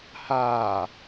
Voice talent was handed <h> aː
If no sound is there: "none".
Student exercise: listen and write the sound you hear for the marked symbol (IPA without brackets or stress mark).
h